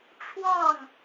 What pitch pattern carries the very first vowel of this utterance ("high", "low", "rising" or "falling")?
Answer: falling